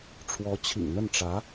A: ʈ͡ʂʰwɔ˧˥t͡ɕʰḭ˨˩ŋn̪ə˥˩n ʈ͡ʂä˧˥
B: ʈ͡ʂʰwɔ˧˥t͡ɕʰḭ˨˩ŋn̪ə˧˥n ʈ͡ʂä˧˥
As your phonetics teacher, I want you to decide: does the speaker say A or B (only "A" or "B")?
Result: A